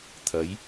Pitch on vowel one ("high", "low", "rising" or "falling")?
rising